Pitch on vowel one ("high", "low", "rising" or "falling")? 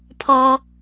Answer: high